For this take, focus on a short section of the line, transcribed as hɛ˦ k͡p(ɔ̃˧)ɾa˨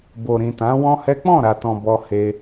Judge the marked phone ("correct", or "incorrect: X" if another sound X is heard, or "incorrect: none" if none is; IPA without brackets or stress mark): incorrect: ɔ̃˦˨